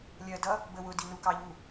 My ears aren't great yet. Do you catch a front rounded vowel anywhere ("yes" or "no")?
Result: no